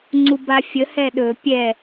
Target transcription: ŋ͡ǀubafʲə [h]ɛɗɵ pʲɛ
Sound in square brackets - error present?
no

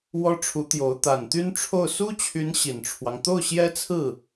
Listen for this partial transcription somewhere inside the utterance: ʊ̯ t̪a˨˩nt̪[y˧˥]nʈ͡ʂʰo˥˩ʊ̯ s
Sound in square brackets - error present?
yes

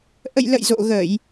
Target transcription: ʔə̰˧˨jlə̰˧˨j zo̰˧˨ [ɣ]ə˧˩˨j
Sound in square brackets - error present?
no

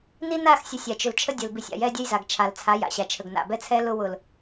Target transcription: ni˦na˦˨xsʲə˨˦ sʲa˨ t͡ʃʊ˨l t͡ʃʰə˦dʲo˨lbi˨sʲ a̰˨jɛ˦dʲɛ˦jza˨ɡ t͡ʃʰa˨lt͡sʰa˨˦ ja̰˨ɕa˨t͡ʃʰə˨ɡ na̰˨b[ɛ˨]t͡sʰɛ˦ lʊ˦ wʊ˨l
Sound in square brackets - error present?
yes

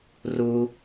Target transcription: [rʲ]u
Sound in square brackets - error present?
yes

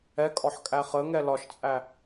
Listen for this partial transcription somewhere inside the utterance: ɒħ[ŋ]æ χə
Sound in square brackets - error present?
yes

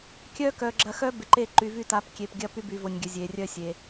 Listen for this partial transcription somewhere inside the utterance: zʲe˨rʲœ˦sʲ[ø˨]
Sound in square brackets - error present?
yes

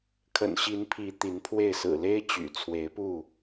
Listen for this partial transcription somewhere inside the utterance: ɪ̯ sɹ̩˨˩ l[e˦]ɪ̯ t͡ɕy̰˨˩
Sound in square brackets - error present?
no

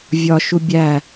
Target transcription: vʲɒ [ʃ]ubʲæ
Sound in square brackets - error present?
no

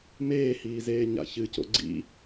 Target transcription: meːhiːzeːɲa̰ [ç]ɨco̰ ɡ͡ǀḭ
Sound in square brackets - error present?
no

